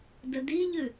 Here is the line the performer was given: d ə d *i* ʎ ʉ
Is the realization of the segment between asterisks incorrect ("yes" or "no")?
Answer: no